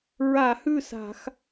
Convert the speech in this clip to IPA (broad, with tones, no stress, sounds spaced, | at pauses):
ɹ a˧˩˧ h ʉ˥˩ s a̤˧˩˧ x